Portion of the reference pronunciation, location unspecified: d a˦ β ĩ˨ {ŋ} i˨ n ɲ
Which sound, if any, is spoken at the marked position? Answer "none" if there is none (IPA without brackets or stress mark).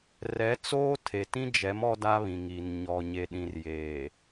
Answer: ŋ